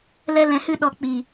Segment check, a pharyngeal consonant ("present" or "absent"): absent